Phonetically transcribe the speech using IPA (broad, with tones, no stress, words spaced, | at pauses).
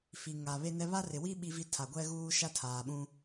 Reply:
fi˨ ŋa˨βe˦nɛ˦ βa˦rɪ˨wi˦ ɓi˦vi˦tʰa˨ ɡʷɛ˦ɣuː˦ʃa˦ tʰaː˨ɓũ˦